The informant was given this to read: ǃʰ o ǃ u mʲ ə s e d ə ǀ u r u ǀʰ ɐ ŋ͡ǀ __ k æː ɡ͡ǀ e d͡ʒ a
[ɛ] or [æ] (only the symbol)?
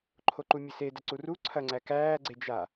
æ